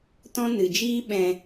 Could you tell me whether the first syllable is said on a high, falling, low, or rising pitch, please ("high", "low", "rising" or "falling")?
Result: high